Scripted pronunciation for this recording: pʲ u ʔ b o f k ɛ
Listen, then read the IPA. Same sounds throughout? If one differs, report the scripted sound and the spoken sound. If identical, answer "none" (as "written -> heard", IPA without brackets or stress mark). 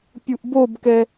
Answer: f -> b